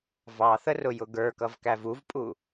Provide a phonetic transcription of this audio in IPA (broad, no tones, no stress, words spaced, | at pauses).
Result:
vɑθərʊjʊ ɡə˞kʌvkæv uvpʼu